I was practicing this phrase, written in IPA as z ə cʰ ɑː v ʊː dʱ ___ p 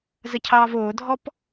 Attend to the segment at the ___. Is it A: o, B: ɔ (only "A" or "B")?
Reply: B